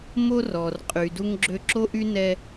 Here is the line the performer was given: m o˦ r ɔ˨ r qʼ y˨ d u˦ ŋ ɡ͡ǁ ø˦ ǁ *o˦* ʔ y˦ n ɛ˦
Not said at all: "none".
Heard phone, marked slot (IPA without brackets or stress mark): o˦